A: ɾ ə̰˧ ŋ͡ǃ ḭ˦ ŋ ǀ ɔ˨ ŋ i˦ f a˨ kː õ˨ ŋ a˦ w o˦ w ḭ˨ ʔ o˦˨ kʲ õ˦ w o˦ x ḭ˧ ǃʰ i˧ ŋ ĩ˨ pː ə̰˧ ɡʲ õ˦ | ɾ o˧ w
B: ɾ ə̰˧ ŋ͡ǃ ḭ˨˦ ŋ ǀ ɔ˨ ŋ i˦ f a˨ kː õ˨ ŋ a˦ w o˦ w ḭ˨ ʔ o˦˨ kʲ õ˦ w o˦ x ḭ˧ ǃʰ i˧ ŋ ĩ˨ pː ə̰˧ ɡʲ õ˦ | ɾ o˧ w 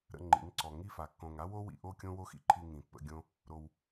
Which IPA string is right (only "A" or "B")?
B